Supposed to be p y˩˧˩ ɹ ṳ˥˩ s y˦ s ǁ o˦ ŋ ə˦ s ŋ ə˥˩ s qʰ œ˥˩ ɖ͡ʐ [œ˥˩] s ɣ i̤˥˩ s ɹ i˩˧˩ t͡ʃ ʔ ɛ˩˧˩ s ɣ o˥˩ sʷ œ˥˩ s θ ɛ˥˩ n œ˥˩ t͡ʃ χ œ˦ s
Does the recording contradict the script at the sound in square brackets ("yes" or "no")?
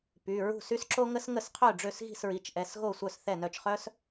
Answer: yes